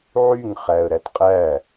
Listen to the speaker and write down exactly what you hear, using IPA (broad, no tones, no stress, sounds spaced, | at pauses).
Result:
ʕ y ŋ χ æ ə̯ ɾ æ t qʼ æ